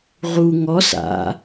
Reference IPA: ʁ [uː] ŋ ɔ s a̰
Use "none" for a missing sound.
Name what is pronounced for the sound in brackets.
u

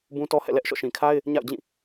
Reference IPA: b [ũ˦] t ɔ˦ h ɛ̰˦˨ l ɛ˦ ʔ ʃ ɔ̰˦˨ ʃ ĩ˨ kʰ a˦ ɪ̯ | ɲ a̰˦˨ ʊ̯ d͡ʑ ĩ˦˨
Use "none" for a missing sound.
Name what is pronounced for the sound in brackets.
ũ˦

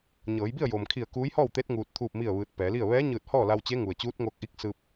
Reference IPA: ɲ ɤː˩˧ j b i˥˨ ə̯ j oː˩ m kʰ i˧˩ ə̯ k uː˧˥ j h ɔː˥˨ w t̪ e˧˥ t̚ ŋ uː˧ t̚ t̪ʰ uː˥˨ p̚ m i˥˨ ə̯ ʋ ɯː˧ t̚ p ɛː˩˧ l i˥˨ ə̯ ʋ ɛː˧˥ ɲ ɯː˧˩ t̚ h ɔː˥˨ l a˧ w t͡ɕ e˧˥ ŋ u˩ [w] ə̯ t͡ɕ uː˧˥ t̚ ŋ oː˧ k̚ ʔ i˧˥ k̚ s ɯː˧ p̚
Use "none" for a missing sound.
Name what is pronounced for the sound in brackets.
none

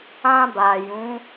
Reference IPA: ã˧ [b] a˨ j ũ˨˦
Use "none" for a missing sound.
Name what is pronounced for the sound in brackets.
b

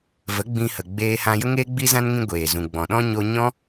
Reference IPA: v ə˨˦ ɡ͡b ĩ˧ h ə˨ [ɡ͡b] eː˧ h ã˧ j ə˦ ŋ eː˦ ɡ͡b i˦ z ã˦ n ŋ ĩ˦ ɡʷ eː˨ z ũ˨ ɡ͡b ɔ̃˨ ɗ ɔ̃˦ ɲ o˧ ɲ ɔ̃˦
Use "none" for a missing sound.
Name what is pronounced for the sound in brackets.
ɡ͡b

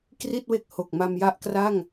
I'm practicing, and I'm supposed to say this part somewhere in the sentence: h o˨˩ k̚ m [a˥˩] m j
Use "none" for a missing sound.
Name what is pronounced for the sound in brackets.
a˧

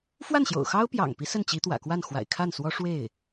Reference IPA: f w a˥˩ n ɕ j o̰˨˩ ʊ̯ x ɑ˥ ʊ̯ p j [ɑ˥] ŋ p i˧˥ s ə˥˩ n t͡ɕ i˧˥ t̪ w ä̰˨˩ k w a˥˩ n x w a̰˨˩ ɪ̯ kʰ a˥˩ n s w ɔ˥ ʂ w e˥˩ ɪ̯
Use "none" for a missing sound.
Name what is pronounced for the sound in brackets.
ɑ̰˨˩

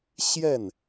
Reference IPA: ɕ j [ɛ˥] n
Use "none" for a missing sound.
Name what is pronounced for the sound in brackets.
ɛ˥˩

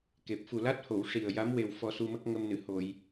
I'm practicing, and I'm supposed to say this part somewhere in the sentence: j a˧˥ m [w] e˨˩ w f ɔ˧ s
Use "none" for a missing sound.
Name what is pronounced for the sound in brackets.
w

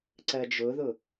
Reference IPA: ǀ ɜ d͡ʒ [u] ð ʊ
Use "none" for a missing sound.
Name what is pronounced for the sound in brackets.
ʊ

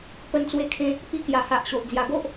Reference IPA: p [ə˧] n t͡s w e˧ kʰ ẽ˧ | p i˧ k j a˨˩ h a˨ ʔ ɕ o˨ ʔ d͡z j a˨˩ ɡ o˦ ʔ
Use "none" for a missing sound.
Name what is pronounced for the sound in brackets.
ə˧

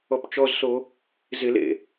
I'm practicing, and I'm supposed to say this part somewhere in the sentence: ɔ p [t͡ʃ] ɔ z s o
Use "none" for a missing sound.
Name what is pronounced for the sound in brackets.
t͡ʃ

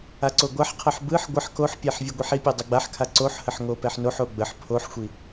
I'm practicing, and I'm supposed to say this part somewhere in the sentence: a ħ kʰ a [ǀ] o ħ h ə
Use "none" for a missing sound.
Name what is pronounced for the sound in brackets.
ǀ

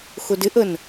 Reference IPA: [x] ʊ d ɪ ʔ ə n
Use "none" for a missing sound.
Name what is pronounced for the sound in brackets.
x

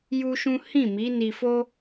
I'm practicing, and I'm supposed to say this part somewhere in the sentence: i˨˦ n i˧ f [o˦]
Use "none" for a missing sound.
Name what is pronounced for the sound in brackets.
o˦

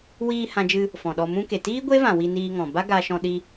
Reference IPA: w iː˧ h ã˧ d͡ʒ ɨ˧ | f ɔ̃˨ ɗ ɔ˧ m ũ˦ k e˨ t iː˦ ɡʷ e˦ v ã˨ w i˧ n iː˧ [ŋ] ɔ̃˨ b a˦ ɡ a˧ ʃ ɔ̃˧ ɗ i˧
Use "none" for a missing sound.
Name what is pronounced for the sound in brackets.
ŋ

